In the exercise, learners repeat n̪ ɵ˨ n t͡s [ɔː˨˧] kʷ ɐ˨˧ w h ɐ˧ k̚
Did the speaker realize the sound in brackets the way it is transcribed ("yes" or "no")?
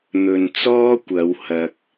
no